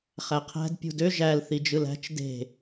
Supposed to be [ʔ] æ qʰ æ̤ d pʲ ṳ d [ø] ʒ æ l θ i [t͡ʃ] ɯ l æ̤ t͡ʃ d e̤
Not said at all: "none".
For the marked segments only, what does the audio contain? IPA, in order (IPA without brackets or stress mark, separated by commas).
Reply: χ, ø, d͡ʒ